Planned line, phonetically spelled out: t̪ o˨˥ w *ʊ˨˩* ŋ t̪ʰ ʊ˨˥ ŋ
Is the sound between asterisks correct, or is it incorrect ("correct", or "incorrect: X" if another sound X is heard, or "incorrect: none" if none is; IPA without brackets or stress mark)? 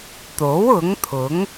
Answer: incorrect: ʊ˨˥